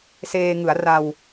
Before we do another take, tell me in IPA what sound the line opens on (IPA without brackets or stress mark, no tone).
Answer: s